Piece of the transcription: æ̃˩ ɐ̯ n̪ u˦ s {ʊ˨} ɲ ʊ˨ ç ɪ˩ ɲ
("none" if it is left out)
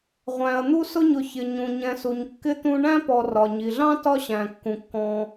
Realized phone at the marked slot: ʊ˦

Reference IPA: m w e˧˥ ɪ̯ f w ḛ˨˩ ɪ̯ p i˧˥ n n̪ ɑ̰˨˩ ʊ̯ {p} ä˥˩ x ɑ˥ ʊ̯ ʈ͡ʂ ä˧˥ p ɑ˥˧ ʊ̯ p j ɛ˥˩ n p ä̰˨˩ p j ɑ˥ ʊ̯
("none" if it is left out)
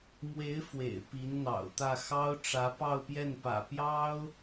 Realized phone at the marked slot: t̪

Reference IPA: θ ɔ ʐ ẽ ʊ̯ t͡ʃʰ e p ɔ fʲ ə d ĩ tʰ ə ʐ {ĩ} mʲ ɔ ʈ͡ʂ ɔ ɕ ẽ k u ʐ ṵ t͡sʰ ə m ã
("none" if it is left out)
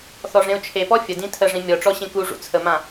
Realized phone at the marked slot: ĩ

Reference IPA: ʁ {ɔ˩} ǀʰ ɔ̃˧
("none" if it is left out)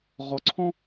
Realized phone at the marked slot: ɔ˩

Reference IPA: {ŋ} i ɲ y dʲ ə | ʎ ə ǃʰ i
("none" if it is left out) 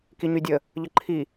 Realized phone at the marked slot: k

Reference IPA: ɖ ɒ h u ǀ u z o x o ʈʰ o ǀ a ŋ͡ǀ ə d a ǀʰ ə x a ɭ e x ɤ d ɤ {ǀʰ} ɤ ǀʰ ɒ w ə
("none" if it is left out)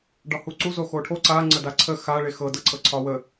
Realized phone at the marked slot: ǀʰ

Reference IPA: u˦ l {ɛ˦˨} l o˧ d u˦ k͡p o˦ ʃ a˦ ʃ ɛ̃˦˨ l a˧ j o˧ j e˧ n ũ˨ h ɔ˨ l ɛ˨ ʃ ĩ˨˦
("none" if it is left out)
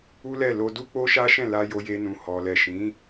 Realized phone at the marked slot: ɛ˦˨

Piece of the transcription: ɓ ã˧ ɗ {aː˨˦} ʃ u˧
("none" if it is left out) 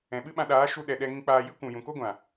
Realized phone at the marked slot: aː˨˦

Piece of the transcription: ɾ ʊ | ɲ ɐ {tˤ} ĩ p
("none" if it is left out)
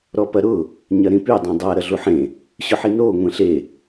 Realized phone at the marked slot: ɾ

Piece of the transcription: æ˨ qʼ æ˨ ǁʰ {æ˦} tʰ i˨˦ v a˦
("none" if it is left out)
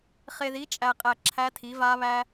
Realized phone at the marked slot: æ˦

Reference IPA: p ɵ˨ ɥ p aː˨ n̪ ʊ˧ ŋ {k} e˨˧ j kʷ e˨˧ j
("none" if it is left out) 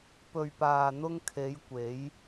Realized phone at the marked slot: kʰ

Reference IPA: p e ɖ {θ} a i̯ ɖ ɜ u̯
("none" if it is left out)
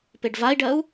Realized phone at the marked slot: v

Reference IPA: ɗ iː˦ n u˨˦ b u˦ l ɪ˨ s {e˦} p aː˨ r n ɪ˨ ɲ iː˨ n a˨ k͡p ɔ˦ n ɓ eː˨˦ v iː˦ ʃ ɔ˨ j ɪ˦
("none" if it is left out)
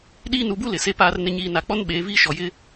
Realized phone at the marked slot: e˦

